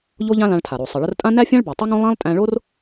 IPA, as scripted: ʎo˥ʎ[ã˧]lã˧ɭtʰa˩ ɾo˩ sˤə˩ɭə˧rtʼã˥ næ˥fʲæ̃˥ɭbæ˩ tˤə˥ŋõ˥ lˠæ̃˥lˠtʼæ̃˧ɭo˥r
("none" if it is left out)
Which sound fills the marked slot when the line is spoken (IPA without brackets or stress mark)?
ã˥